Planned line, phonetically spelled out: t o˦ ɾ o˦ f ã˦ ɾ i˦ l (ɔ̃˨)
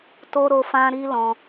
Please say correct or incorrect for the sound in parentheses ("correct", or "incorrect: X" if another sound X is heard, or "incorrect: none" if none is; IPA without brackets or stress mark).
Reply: incorrect: ɔ̃˧